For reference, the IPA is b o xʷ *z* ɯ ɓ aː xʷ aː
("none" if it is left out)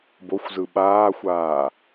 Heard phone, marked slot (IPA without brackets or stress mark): z